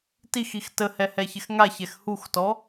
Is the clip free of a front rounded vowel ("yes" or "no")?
yes